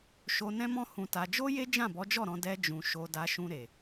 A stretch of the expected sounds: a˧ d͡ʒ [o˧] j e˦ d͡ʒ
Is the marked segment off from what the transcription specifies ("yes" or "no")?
yes